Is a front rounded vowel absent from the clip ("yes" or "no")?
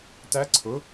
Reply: yes